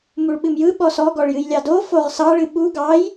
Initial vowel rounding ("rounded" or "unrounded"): rounded